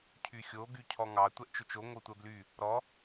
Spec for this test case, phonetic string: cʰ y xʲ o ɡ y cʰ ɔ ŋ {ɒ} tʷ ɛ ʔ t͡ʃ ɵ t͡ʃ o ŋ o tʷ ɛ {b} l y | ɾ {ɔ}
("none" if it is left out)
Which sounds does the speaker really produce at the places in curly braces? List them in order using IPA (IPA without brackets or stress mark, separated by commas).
ɑ, b, ɔ